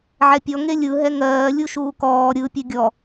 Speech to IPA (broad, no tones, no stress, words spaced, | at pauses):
ʕɛpʲɔ ŋelʲɯ ɦɛŋɜː lʲuʃuːkɔː ɾʲɯ pʲɛɡʲɔ